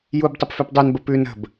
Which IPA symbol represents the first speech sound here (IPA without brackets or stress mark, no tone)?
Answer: j